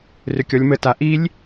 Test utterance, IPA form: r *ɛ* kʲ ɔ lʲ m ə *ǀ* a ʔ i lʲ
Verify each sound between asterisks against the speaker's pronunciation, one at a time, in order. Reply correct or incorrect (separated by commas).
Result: incorrect, incorrect